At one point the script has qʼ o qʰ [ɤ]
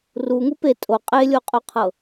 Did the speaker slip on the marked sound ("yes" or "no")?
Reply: no